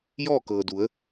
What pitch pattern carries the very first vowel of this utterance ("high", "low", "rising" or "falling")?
falling